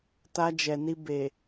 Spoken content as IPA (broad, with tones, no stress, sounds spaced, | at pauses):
t a˧ d͡ʒ ɛ˨ n i˧ b e˨